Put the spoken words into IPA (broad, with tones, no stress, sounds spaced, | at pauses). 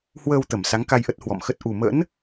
h w əː˧ w t̪ ə˧˩ m s a˨˦ ŋ k a˧ j ʔ ə˦˥ t̚ h w ɔ̰˧˨ m x ə˦˥ t̚ ʔ u˨˩ m ə̰˧˥ n